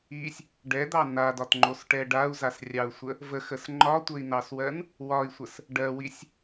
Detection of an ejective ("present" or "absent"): absent